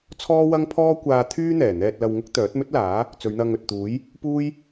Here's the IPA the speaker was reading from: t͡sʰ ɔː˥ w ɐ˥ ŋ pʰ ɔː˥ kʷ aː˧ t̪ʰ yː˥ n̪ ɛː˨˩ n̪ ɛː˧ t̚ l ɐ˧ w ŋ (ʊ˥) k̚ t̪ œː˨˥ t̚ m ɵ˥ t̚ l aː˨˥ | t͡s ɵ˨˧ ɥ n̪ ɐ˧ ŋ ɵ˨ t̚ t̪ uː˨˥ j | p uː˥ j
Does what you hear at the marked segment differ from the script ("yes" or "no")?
no